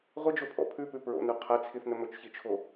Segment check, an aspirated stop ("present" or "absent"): present